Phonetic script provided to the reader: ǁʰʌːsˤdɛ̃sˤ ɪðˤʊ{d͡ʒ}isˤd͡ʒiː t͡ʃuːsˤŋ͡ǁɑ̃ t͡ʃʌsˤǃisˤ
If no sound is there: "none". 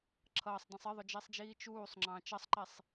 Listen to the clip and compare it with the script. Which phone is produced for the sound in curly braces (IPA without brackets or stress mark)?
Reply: d͡ʒ